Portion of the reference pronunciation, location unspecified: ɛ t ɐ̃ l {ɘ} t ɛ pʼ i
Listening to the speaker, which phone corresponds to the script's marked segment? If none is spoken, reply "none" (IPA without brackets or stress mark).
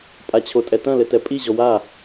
ɘ